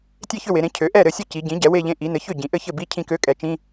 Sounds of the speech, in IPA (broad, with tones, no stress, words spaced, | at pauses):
tʲe˥˧çʏ˥˧we˩˧ɾẽ˩˥ cʰø˩˥ʔɛ˥˩ɾɘ˥˩sʲɘ˥˩ ci˩˧ ɟĩ˩˥ ɟɛ˩˥we˥˧ʎẽ˧˥˧ ʔi˩˥ nɘ˩˥ çʏ˥˩ ɟĩ˩˧ʔɘ˥˧ çɘ˥˩bi˧˥˧ cʰĩ˥˧kø˧˥˧ kʼɛ˩˧t͡ʃĩ˧˥˧